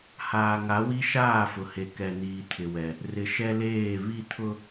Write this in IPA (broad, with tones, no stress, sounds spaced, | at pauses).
h aː˨ ŋ a˨˦ w i˦ ʃ aː˦˨ f ʊ˨ h e˨ k ɛ˨ n iː˨ tʰ ɪ˨ w ɛ˨ | r ɪ˨ ʃ ɛ˦ l eː˦˨ β i˦ tʰ ʊ˦